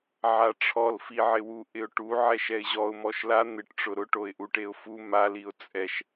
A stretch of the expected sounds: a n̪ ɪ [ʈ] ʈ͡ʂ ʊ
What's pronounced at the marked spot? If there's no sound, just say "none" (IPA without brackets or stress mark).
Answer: ʈ